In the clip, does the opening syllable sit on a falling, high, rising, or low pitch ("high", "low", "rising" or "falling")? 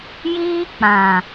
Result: high